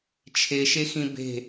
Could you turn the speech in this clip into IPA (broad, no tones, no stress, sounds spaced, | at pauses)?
t͡ʃʰ e ʃ e x ĩ b e̤